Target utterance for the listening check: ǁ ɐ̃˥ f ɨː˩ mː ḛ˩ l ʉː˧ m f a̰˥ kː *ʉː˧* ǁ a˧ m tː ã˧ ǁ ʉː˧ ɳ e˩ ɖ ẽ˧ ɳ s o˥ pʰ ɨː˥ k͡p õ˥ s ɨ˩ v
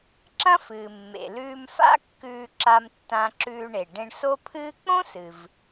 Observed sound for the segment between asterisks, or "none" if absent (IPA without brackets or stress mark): ʉː˧